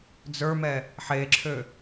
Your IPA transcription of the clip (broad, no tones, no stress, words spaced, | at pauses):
d͡zə˞mɛ | ħeǁʰø